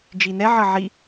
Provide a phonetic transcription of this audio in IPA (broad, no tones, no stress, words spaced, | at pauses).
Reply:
d͡ʒinɛ ʕʌʕi